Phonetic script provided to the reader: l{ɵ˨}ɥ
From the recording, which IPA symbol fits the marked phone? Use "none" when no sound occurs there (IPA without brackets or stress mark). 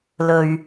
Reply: ɵ˨